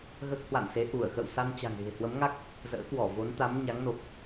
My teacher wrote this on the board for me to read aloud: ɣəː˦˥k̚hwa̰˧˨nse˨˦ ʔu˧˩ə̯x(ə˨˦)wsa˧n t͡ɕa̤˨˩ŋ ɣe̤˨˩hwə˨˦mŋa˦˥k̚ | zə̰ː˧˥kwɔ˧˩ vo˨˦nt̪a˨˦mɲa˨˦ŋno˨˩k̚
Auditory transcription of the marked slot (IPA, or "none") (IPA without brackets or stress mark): ə̰˧˨